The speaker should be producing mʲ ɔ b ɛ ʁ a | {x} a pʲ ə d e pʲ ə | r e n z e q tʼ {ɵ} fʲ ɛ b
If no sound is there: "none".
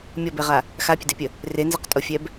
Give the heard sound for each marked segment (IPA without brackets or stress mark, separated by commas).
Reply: x, o